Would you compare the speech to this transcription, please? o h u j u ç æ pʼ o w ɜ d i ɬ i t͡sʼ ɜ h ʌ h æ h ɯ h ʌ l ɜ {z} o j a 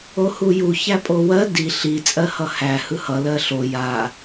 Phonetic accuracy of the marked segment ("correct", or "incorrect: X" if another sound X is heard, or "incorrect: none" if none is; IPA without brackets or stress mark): incorrect: ɬ